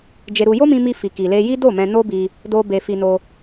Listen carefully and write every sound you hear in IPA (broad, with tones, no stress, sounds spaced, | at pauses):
d͡ʒ e˧ ɾ u˧ j o˦ m ĩ˧ m i˧ f i˨ k i˨ l e˧ j i˦ d o˦˨ m ɛ̃˧ n o˦ b i˧ | d o˦ b e˧ f i˧ n o˧